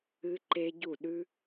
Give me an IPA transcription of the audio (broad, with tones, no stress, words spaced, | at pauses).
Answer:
ɨ˦˥ǃe˦˥ ɟu˥˩ɗʉ˦˥